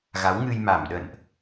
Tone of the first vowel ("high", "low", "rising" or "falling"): rising